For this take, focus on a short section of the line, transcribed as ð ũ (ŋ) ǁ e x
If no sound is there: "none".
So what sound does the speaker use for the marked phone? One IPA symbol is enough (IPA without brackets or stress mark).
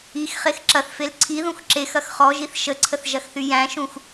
x